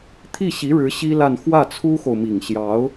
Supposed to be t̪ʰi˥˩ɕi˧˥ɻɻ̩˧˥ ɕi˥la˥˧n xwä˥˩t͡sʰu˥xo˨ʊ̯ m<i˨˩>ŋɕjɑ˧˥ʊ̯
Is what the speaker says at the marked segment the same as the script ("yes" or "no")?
yes